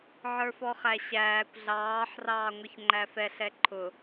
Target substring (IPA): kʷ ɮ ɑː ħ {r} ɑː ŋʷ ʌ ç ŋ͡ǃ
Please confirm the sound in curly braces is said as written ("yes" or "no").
yes